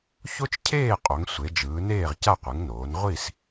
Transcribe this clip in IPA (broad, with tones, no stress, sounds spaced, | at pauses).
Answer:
ç o˥ t͡ʃ cʰ eː˥˨ qʼ o˩˧ ŋ sʷ e˩˧ d͡ʒ ɯː˩˧ n eː˥˨ ʁ c a˥˨ qʷ ɯ˩˧ ŋ n oː˩˧ n ʁʷ i˥˨ s